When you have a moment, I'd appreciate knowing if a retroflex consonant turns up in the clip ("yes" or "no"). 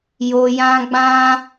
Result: no